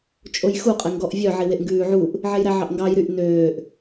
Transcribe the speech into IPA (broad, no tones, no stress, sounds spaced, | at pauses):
t͡ʃʼ o j x u qʼ ɛ ŋ ɡ ɔ ʔ vʲ œ ʕ i w e ʔ ŋ ɡ ʉː ʕ u ʔ | ʕ e j ɾ æ ʕ ɑ ʔ ŋ ɡ ɑ j ɾ y ʔ n øː ʔ